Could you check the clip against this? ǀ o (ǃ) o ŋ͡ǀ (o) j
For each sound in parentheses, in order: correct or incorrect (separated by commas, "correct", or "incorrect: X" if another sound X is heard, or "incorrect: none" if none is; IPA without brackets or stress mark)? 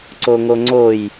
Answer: incorrect: ŋ, correct